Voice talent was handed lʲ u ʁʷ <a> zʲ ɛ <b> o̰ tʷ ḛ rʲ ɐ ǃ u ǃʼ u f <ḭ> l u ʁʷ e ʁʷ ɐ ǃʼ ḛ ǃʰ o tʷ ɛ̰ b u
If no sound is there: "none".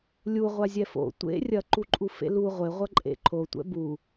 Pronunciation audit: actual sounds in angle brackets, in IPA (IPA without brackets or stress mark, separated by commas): a, f, ḛ